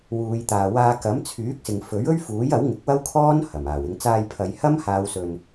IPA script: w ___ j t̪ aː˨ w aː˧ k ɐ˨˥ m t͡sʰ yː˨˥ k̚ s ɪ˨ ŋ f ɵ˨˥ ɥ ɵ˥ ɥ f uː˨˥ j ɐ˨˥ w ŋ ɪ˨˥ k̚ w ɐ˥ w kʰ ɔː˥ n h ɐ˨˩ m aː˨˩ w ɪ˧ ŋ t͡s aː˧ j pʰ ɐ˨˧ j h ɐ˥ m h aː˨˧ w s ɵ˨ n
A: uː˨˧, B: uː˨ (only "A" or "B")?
A